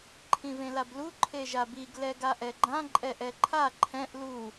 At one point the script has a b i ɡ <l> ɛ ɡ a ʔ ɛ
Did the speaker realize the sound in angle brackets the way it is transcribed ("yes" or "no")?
yes